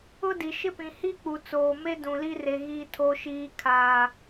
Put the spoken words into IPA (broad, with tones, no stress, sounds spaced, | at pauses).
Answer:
ʊ˦ d i˨ ʃ ɪ˦ p ĩ˨ h i˦ k͡p u˨ t͡s oː˨ m e˦ d ũ˨ l i˦ r e˨ ɣ i˨ tʰ o˨ ʃ iː˨ kʰ aː˨